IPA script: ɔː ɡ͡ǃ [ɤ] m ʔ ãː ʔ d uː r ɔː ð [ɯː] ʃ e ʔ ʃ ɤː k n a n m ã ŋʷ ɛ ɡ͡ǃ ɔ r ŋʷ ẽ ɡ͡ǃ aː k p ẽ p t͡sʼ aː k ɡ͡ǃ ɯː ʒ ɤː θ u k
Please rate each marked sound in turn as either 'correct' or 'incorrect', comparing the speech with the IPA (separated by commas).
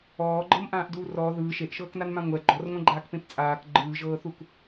correct, correct